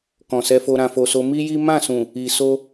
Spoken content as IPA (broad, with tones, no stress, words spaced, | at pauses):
kɔ̃˨sɛ˧fo˧ ɾã˨fo˨ so˧ mi˦ji˦ mã˦˨sũ˨ | i˨so˧